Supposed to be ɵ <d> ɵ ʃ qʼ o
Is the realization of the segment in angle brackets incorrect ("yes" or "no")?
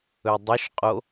yes